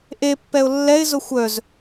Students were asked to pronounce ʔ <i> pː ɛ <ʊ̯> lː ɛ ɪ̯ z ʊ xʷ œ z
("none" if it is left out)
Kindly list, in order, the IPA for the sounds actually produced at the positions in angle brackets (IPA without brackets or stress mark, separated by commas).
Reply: e, ʊ̯